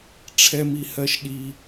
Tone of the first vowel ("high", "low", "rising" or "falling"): high